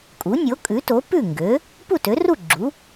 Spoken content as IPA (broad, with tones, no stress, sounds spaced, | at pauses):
kʼ u˩˥ nʲ o˩˥ kʼ ʉ˩˥ t o˩˥ p ʉ˥˩ ŋ ɡ ø˩˥ | p u˥˩ t ø˩˥ r u˥˩ ɡ͡ǁ u˩˥